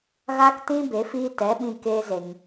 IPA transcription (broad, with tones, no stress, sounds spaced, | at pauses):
ɣ a˦ k t ĩ˦ b e˨˦ f iː˦ t ɛ˨˦ ɓ ĩ˧ k e˦ z e˧ ŋ